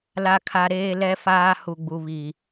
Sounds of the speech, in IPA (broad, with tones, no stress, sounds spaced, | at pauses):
l a˨ kʰ a˨ ɾ eː˦ l ɛ˦ f aː˦ h u˨ ɡ͡b u˨ β i˨